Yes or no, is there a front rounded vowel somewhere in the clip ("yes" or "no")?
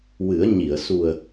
no